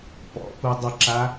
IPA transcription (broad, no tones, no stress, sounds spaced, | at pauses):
p ɔ̰ p u dˤ ə ǁ a